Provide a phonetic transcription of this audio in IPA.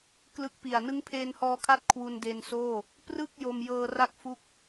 k l ɯ˦˥ k̚ p i˨˩ a̯ n ɯ˦˥ ŋ pʰ eː˧ n h ɔː˧ kʰ a˦˥ t̚ kʰ w u˧ n d e˧ n s oː˥˩ | p r ɯ˥˩ k̚ j o˧ m j ɤː˧ r a˥˩ k̚ f u˦˥ k̚

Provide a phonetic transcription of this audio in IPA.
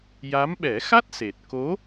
j a˧˥ m ɓ ɛ˨˩˦ x a˦˥ t̚ s e˨˩ t̚ k o˧˥

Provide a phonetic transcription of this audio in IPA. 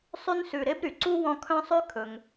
sˤ y˦ n s ʉ˨ ɾ e˥ b ɾ y˩ ǀ u˥ w ɔ̃˦ kʰ œ̃˦ sˤ ʉ˦ kʰ ɵ˩ ŋ

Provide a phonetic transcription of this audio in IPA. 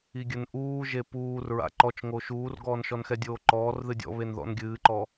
i ɡʲ ɘ n ʔ uː ʒ e p uː r ɹ a̰ ǃ ɔ t͡ʃ ŋ o ʃ uː r ɡ ɔː n ʃ ɔ n x ɛ dʲ oː ǃ ɔː r ð ɨ dʲ ɔ̰ β e n ð ɔ̰ n ɡʲ ɨː ǃ ɔ

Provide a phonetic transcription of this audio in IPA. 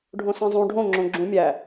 ɖʱ õ s ẽ zˤ ũ ɖʱ õ ŋ͡ǁ õ ɡ͡ǁ ũ mʲ æ

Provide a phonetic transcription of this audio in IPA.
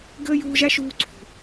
ɡ əː˥ j uː˦ ʒ a˥ ʃ uː˦ ǀʰ ṳ˨

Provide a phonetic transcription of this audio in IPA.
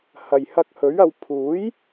h ɐ˨ j h ɐ˧ k̚ h ɵ˨˥ ɥ ɐ˧ w pʰ uː˨˥ j

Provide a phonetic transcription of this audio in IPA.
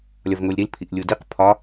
lʲ ɒ v ŋ o lʲ ɾ i l pʰ i ʔ lʲ u d i q pʰ ɒ

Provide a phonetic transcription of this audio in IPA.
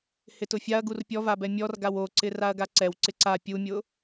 h ɪ t ʊ fʲ a ɐ̯ ɡ u r pʲ ɔ v a b ɛ mʲ ɔ r ɡ a w o ǀ ɪ r a ɐ̯ ɡ a ǀ ɛ w ǀ ɪ ǀ a pʲ u mʲ ʊ

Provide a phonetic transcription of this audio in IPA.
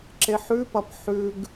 ǁ e ħ ʉ p ɐ p ħ ʉ ɡ

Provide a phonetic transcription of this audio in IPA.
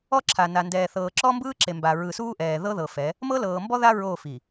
ɔ˦ ǁʰ a˨ n a˨ n d ɛː˨ θ ɤː˨ ǁ ɔ˦ m b ɯː˦ ǁ e˨ m b a˨ ɹ ɯ˨ s uː˦ ʔ ɛː˨ ð ɤ˦ ð ɤ˨ f ɛ˨˦ | m ɤ˦ l ɤː˨ m b ɔ˦ ð a˦ ɹ o˦˨ f i˨

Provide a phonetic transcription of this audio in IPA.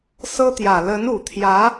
s ɤ˥ t̪ j ä˨˩ l ə˧˥ n u˨˩ t̪ʰ j ä˧˥

